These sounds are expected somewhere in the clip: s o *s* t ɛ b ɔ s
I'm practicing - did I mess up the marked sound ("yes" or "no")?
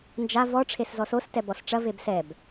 no